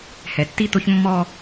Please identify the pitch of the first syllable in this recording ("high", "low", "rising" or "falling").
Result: low